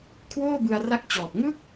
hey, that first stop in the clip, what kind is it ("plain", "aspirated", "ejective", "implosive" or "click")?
aspirated